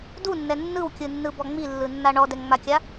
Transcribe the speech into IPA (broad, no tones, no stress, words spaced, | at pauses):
dunːɛ nːɯwkʲɯnːɯbɔ ŋ͡milːɯnːa ɳɔdɛŋŋ͡makʲa